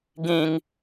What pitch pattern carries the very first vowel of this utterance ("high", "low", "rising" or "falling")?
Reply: low